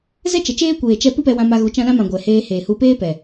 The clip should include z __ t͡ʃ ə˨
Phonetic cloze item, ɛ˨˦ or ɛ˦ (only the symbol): ɛ˦